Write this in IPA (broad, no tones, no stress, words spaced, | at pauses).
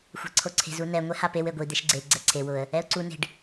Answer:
xʷa̤ǀʰoǀʰe̤z unɛ ŋʷɛhapew eɡʷi d̪eʃɡ͡ǀe ɡ͡ǀɛǀʰe wʊə̯ | ɛʊ̯ǀu ne̤ɖ